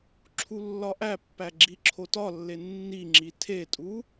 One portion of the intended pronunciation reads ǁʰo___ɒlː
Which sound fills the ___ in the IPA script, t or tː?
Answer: t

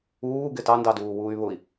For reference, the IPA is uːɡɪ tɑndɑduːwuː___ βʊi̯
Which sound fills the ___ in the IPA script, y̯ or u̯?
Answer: y̯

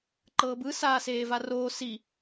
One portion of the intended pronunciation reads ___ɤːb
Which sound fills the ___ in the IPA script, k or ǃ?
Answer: ǃ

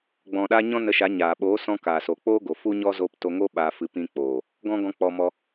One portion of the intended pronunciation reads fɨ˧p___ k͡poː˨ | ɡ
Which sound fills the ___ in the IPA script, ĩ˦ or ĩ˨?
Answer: ĩ˦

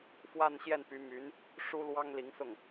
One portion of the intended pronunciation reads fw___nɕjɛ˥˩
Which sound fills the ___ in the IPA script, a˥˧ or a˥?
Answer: a˥˧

